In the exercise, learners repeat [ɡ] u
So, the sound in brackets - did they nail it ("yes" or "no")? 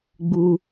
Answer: no